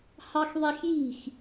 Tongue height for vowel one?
low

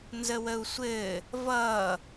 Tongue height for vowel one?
mid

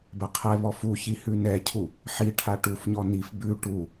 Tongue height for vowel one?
mid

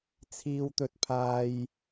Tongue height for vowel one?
high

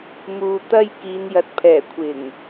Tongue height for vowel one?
high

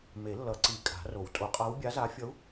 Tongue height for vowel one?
mid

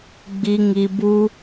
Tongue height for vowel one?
high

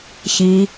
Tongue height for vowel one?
high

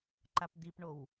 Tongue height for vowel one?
low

